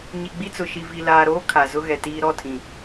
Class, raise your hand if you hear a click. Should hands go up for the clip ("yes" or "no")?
no